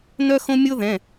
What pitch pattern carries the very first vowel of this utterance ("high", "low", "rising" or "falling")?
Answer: high